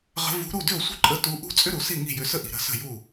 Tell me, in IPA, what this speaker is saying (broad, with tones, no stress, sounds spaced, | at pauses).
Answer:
ʁ ə̤˧˥ v ṳ˧˥ ɾ u˥˨ d ʏ˥˨ o̯ sʷ ə̤˥ ǃʼ ə˧˥ t u˧˥ ʔ ṳ˥ t͡sʼ ʏ˥ ɾ u˨ s i˥˨ ŋ i̤˥˨ j ʏ˧˥ s ə˥ ʔ i̤˨ ɾ ə̤˧˥ s ə̤˥˨ j u˥˨